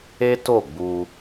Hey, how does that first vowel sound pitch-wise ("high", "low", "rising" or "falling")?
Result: high